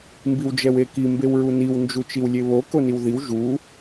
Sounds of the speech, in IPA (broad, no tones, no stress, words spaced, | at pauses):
mbiwd͡ʒɛweki mbewɹuniw nd͡ʒut͡ʃiwlʲeβo koniwðiw ʒu